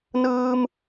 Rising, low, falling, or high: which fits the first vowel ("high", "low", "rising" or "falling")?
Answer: high